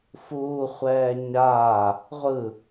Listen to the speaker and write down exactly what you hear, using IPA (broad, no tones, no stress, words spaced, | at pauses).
fuːχʷɛː ɲaː | ʁʷɯ